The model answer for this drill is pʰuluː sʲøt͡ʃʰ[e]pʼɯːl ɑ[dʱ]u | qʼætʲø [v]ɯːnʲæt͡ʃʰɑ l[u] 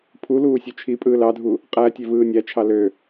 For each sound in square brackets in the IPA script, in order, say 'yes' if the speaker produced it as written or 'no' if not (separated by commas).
no, yes, yes, no